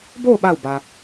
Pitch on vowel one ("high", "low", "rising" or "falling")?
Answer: falling